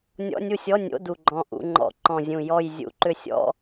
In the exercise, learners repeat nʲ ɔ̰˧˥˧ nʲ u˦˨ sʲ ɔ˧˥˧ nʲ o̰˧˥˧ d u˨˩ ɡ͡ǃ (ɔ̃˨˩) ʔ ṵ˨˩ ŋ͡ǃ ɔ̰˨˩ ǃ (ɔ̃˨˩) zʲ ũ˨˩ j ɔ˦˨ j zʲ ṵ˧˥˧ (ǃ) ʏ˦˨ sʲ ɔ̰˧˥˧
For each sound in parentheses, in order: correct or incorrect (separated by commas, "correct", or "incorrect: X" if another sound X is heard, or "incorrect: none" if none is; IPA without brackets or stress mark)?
correct, correct, correct